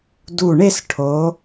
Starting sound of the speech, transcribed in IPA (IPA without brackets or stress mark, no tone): d